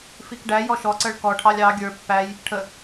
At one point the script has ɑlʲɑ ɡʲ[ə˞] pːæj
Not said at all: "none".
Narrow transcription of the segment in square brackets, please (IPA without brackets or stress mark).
ə˞